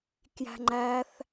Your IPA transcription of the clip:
kjæ̤ŋ͡ǃæθ

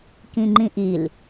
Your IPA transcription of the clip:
kĩŋ͡ǃĩʔil

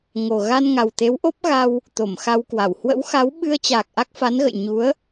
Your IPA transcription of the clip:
ŋo˨˩ ɣa˧nŋa˨˩wt̪e˨˦w ʔo˦˥p̚ɣa˧w | t̪o˧˩mxa˧wkwa˧˩w hwə̰˧˥wxa˨˦w ɓɨ˧ə̯t͡ɕaː˨˩k̚ ʔa˦˥k̚fa˨˦nɣə̰˧˨j ɲu˨˦ə̯

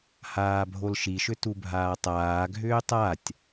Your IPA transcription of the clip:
haːbʱolʃiʃʏ tubʱaːtˤaːɡʱʏː tˤatʲ

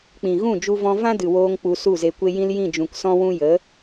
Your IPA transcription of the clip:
k͡pĩ˨ɣũ˦˨ d͡ʒu˧vɔ̃˧ vã˦dɨ˨woː˧ŋ k͡pu˧su˦˨ze˧ kʷe˧jĩ˧l jĩ˦˨d͡ʒũ˨ksɔ̃˦wũ˦ jə˨˦

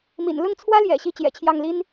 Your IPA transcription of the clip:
mḭ˨˩n lʊ˥˩ŋt͡sʰwä˥ljɛ̰˨˩ ɕi˥˩ t͡ɕjɛ̰˨˩t͡ɕʰjɑ˥˩ŋli˥n

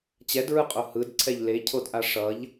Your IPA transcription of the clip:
t͡ɕɛdɹɯqʼo hɯdǀʰɛʎ lecʰodʔa ʂʌʎ

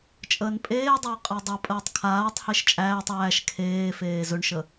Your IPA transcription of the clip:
t͡ʃʼəːnpʼeːdˤəː qʼadˤɵpʼəːtˤ kʰaːtˤheʃ t͡ʃʼæːtˤ æːʃ kʰeːfeː zɵɳʃə

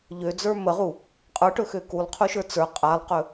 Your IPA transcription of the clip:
ʎød͡zə˞ məʁu | qʼə˞ʈɵxø kulˠqʰuʃə˞ t͡sə˞ qʼalˠqɵ

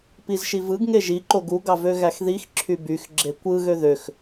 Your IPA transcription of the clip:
pizʃivɯɡ ŋeʒi ǃoɡu ɡɑvøɣæxðix ǁʰybyx ɡ͡ǁekʷɯ ɣøðøx

